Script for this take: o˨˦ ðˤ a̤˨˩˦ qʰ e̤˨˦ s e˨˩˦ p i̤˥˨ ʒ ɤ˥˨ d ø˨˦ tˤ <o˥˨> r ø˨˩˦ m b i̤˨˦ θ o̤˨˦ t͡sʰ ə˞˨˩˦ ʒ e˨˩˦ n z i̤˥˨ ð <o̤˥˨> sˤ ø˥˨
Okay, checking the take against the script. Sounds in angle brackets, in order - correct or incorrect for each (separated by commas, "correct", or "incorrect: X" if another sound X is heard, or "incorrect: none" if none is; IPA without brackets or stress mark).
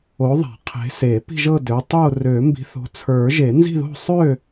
correct, correct